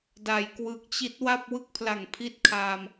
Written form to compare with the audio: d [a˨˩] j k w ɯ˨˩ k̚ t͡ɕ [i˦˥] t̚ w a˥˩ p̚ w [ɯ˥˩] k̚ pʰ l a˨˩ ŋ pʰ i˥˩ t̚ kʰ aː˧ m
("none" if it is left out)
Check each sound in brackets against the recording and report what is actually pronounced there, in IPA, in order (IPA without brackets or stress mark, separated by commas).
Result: a˩˦, i˦˥, ɯ˥˩